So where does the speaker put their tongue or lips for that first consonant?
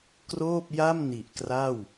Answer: velum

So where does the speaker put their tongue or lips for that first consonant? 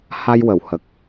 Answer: throat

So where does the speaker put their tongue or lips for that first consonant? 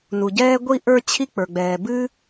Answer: tongue tip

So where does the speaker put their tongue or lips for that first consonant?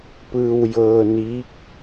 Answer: lips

